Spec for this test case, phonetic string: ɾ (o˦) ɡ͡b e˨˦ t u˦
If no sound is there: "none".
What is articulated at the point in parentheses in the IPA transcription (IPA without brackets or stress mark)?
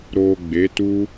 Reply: o˨